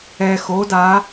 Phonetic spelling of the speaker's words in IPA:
ɛː˩ x oː˩˧ d aː˩˧

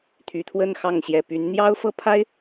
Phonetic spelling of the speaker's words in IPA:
t̪ʰ y˨˩ t̪ʰ w ə˥˨ n x ɑ˥˨ ŋ ɕ j ɛ˨˩ p y˨˦ n n̪ j ɑ˦ ʊ̯ f ɤ˥˨ pʰ a˦ ɪ̯

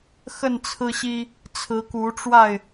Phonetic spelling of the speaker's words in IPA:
x ə˥˨ n t͡sʰ ɹ̩˦ ɕ i˦ | t͡sʰ ɹ̩˨˦ k u˨˦ ʈ͡ʂ w a˥˨ ɪ̯

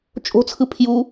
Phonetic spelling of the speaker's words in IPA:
t͡ʃʼ o̤ t͡sʰ ɯ pʰ j u

